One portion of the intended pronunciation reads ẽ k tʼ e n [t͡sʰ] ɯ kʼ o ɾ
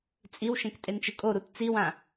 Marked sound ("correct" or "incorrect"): incorrect